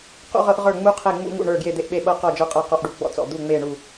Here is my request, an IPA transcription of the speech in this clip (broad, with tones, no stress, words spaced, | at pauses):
qṵ˧ʁɤ˧ʔ ʁə˞˧˩ŋ͡mu˧qʰe˧˩ ŋ͡mṵ˧ŋṵ˧˩ɳə˞˧˩ ɡje˧˩d̪e˧˩ʔɓe˧˩ɓɤ˧˩ qɔ˧˩d͡ʒə˞˧qʼɤ˧˩ qɔ˧ʔɖu˧˩ɡ͡bɔ̰˧t͡sɔ̰˧˩ d̪u˧˩ ŋ͡me˧˩ɳu˧˩